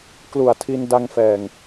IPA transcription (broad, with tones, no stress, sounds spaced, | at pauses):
k l u˨˩ a̯ tʰ i˧ n d a˧ ŋ f ɛː˨˩ ŋ